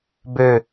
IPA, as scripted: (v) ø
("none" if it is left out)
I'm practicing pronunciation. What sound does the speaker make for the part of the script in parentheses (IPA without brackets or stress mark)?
b